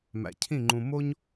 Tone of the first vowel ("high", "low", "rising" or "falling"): low